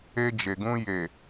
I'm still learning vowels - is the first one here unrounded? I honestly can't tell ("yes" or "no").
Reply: yes